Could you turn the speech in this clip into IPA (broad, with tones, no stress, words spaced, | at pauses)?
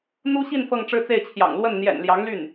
n̪u˥ɕi˥˧n fɤ˥˧ŋʈ͡ʂɻ̩˥˧t͡se˥˩ɪ̯t͡ɕʰjɑ̰˨˩ŋ lwə˥˩n n̪jɛ̰˨˩n ljɑ˧˥ŋly˥˩n